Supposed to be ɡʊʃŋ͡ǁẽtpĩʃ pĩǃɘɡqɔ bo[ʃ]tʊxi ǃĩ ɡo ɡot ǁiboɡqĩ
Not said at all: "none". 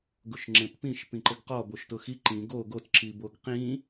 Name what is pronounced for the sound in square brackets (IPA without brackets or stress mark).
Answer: ʃ